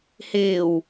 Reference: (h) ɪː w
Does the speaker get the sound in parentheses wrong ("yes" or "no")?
no